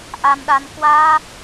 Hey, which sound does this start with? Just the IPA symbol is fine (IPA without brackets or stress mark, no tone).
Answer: ʔ